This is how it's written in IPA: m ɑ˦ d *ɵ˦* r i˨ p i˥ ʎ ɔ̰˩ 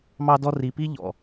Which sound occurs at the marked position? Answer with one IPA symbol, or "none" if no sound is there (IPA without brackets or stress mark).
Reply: ɔ˦